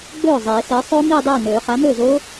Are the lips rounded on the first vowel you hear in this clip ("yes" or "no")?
yes